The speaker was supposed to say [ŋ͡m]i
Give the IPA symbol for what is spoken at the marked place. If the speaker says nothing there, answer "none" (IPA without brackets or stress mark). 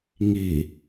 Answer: ŋ